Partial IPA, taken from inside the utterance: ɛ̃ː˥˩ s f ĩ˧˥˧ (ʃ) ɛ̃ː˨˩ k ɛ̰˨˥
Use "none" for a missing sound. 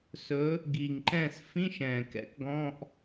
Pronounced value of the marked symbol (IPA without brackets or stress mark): ʃ